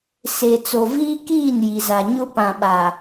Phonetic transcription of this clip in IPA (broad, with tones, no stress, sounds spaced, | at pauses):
s e˨ t͡s o˨ v iː˦ k iː˦˨ n j i˨ z a˨ ɲ ʊ˦ p ã˨ ɓ a˨